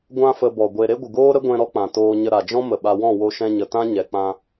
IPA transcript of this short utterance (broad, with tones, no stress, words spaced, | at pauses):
ɡʷã˦ fə˧bɔ˨ɡʷe˧ ɾe˦ɡʷɨ˨ɡoː˦ɾə˦ ɡʷɛ̃˧ ɾɔ˦k͡pã˨toː˧ɲə˧ ɾa˨d͡ʒɔ̃˦ mə˨ɓa˧ wɔ̃˦˨wo˧ʃɛ̃˧ɲə˨ tã˦ɲɛ˨ k͡pã˧